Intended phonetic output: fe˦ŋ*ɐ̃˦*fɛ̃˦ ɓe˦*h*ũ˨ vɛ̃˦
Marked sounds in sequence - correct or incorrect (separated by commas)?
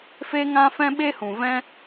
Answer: incorrect, correct